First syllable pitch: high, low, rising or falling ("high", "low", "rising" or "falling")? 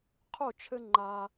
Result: falling